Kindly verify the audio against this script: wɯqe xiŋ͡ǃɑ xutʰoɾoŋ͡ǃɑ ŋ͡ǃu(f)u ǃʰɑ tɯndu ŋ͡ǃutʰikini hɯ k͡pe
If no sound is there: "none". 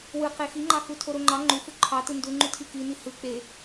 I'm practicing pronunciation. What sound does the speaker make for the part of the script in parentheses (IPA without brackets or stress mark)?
f